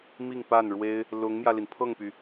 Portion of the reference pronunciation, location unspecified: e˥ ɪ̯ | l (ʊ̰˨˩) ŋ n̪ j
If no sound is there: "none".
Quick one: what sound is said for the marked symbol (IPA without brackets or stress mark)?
ʊ˧˥